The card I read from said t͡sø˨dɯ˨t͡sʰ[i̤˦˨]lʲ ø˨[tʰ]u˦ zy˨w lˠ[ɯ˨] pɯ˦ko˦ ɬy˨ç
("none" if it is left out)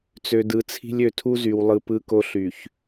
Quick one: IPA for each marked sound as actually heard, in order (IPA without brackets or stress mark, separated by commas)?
i̤˦, tʰ, ɯ˨